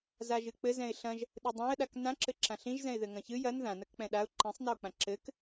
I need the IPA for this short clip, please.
z a ʒ ɨ k͡p ɘ z ɛ̃ ɪ̯ ɬ ɐ̃ ʒ | ɗ ɨ dˤ ã ə̯ ɗ a k n ã ǁ ɘ ǁ ã ɬ ĩ ʒ z ɛ̃ ɪ̯ ð ɘ ŋ ɐ̃ ç ɨ j ɐ n ð ã n ɐ k k͡p ɛ̃ ɗ a ʊ̯ ǃ ĩ sˤ n a ʊ̯ k͡p ã ǁ ɘ k

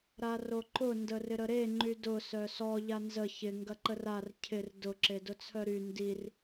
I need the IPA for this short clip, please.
ɾ a r o ǃ ʊ n d ə r ɪ ɾ ə ɾ e ŋ͡ǃ y d ʊ s œ s ɔ ʎ a n z ə ç ɪ ŋ ɡ ɐ ǃ ə r a r cʰ ɪ r d ʊ ǁ e d ʊ t͡sʰ œ ɾ y n d i r

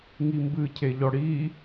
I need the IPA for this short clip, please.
ŋ i m b ɨ cʰ e ʎ ɔ ɽ i

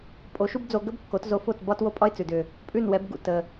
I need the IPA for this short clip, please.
pʼ o˩˥ ʃ u˥ b d͡z o˧ ɡ ə˥ b kː o˩˥ t z o˧ f o˥˩ t b ɒ˥ t w o˥ pʼ ɒ˥ ɪ̯ t͡s ʉ˩ d ʏ˩ | pʼ ʉ˥˩ n w ɛ˩˥ b ɡ ṵ˥˩ t ə˩

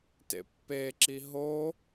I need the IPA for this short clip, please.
t ḛ pː e ǁ i ɦ o

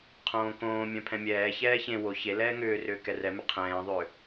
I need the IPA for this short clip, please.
qʰ õː k õː mʲ œ̃ pʰ ɛ̃ mʲ ɛː ç ɛː ç ẽ w o ç e l ɛː ŋ ʏː r ʏː k ɛ r ɛ m ʏ qʰ ɛ̃ː ðˤ ʏː

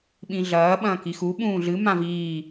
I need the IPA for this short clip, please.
ɓ ĩ ɮ ɐː ɓ ɐ̃ː k i x u ɓ ũː ɮ ɨ m ã v iː

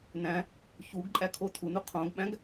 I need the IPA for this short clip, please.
n æ̃ | ç u ɡ ǃʼ æ kʰ o tʰ u n u qʰ õ ɡ ɓ æ̃ ɡ

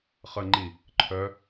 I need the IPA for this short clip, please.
χ ə ŋ͡ǃ i | ǃʰ œ

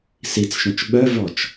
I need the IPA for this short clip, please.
s i t͡s ʃ œ̃ t͡ʃ ɓ œ v ɔ t͡ʃ

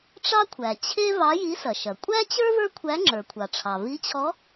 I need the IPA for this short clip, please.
ʈ͡ʂ ɑ˥ kʷʰ æ˩ t͡ɕʰ e˥ v ɑ˧˥ j i˧˥ s ɐ˩ ʃ ɐ˩ kʷʼ æ˥ t͡ɕ ə˞˥ v ə˞˥ kʷʰ æ˧˥ ŋ͡ǁ ə˞˩ kʷʰ ɑ˩ ʈ͡ʂʰ ɑ˩ v i˧˥ t͡ɕʰ ɔ˧˥

